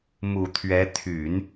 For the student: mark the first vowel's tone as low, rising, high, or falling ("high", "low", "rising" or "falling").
low